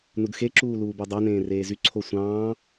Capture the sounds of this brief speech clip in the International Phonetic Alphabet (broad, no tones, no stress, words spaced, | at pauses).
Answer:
nudxe ǁuːluːbødˤo nẽːreːzy ǀʰosʷɑ̃ː